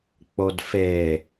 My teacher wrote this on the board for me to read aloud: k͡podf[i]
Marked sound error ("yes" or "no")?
yes